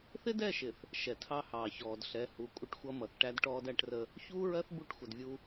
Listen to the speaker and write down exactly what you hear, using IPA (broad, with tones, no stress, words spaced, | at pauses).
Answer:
θɪ˦dɛ˦˨ʃɪ˨θ | ʃɛ˨tʰɑ˦hɑː˨ çɔː˨dɬɛ˨˦ hu˨ kʷʼə˦ʈxʷʌ˦mʌ˨θ ʈæ˦dʈɔː˦dæ˦ʈrə˦ | çuː˦ɹɜ˦θ bu˦˨ʈxʷə˨dvʲu˦